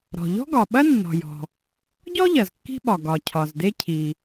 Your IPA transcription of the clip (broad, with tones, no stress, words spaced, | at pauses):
ɾɔ̤˩ʎɔ̤˥ɡɒ˩ɓɐ˥ nːɔ̤˩jɔ̤˩ | ɟɔ˥ ʎɐ˩zkːi̤˥ɓɒ˩ ɡɒ˩ cʰɒ˩zde˥cʰi˩